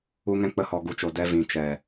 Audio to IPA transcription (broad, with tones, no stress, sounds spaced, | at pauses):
u˧ ŋ ɛ̃˧ k͡p ə˧ h ɔ˨ ɡ u˨ t͡ʃ o˨ d ɛ˧ v ĩ˨ t͡ʃ ɛ˨